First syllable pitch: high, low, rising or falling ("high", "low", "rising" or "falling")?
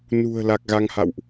low